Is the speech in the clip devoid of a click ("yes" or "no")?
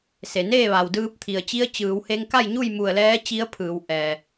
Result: yes